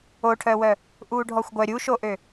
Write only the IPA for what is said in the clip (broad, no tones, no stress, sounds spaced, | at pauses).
o ʈʰ œ w œ | ʔ uː ɖʱ ɔ xʷ ɡʷ œ ɾʲ u ʃ o ʔ ø